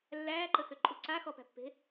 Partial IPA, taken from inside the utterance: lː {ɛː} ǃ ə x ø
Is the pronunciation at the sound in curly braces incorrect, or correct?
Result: incorrect